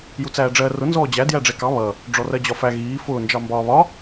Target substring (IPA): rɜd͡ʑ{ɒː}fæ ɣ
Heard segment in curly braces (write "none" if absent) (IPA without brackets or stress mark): ɒ